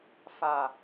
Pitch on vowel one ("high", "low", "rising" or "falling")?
low